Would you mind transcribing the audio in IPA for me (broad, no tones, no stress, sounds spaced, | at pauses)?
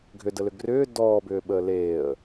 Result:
ɡʱ ʏ d ə l ʏ ɡ r ʏː d ɔː b ʏː ɓ əː l eː ə̯